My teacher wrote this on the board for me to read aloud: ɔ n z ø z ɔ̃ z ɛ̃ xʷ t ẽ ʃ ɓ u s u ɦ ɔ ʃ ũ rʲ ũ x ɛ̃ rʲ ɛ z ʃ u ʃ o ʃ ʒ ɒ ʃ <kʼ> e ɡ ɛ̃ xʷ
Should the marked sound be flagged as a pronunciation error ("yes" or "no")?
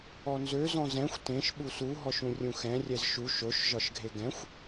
yes